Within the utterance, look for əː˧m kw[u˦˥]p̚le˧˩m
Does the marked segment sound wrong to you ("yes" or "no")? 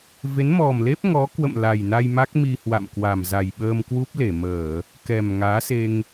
no